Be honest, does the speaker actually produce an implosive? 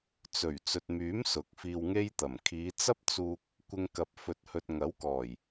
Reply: no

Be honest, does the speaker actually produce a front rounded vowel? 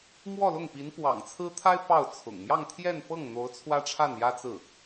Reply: no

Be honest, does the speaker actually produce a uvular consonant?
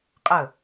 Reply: yes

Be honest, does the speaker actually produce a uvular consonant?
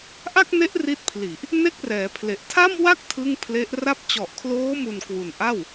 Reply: no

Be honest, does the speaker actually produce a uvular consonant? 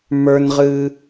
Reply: yes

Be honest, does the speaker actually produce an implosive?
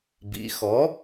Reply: no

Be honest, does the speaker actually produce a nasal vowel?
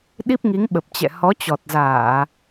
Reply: no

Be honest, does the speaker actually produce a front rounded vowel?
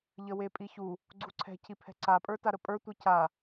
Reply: no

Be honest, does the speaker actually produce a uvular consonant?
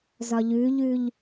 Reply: no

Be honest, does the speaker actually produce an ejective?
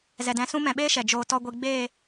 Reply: no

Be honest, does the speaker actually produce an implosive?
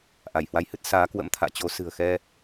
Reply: no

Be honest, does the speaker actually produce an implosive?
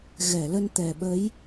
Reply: yes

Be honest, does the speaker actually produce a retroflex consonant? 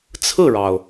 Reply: yes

